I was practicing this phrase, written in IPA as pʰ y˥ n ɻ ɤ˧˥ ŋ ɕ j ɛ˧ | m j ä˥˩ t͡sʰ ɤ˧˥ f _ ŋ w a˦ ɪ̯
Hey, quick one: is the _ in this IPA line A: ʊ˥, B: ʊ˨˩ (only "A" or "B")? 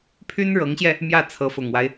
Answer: B